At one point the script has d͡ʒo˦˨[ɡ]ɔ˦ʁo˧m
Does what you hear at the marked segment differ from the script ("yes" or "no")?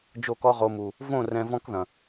yes